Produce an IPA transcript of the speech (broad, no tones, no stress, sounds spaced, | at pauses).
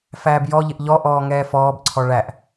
f æː b j ɔ ʎ ɪ ʔ ʎ ɔ ʔ ɔː ŋ ɛː f ɔː b ǀʰ ɔ ɭ æ ʔ